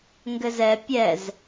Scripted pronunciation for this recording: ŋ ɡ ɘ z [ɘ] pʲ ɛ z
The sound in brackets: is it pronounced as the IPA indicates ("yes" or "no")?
no